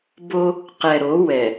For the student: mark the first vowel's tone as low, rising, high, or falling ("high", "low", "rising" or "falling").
high